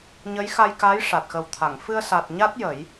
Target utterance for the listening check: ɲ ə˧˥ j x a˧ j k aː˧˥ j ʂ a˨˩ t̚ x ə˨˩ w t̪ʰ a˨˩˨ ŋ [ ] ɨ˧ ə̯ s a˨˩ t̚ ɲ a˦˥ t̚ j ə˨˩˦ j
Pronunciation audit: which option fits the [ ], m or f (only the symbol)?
f